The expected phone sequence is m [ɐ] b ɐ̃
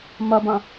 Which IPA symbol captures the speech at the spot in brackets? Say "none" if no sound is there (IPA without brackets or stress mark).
ɐ